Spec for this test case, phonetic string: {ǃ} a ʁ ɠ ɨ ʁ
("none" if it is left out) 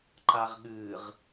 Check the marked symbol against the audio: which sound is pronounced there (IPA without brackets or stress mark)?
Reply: ǃ